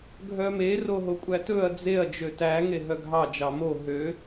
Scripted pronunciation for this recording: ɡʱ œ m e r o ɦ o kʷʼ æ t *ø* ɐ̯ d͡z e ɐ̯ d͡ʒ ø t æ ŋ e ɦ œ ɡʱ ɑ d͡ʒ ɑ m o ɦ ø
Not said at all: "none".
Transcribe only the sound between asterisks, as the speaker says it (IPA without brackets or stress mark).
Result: ɵ